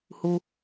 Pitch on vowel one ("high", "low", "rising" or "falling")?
high